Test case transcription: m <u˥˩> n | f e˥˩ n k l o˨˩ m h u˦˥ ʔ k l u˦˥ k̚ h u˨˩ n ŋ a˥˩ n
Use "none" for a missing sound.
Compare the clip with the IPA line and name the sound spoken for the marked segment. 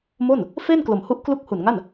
o˥˩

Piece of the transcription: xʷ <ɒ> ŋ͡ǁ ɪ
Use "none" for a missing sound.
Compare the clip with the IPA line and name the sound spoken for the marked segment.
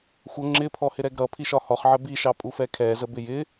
ʌ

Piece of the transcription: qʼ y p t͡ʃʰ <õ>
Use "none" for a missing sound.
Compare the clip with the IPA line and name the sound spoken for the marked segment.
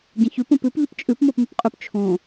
õ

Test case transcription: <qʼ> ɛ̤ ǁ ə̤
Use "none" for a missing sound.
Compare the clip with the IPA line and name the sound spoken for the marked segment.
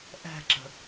ʔ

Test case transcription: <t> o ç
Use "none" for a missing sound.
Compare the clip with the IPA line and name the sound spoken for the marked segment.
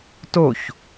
t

